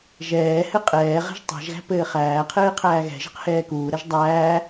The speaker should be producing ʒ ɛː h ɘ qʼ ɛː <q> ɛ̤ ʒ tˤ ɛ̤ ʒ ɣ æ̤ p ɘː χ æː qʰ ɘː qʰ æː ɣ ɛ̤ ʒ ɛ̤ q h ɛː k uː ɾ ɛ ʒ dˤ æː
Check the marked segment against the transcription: incorrect: ʁ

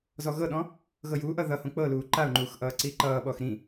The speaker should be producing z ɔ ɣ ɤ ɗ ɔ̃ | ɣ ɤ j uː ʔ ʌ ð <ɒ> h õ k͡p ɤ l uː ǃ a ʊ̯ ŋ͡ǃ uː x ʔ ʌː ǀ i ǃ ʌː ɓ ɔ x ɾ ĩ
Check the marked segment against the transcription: incorrect: ʌ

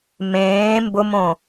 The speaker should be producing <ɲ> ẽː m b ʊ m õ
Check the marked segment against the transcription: incorrect: m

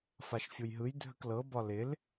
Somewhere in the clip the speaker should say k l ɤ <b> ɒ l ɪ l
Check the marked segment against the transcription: correct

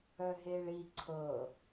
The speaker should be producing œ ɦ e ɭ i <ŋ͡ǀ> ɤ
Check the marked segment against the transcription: incorrect: ǀʰ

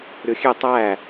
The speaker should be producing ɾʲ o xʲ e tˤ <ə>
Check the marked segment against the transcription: incorrect: æ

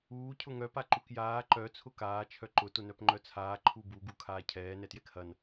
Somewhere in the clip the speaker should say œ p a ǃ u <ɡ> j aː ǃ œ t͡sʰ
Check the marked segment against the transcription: incorrect: k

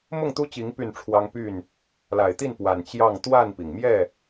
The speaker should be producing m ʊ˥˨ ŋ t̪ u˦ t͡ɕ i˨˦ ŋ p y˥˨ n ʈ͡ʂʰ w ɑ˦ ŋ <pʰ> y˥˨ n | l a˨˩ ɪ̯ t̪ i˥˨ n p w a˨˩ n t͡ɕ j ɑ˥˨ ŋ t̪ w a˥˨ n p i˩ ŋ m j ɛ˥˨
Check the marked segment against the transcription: incorrect: p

